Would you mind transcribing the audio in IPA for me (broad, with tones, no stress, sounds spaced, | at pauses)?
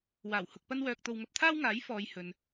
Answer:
w aː˨˩ w h ʊ˧ k̚ p ɐ˥ n w œː˧ k̚ t̪ o˧ w ŋ ɐ˧ p̚ t̪ʰ aː˥ w ŋ aː˨˥ j f ɔː˨ j h ɵ˨ n